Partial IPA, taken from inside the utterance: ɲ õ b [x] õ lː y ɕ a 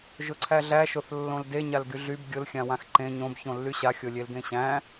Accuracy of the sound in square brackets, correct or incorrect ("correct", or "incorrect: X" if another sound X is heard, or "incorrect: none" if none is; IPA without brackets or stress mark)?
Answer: incorrect: ç